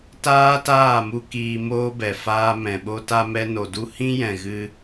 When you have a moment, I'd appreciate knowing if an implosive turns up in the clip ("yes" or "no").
yes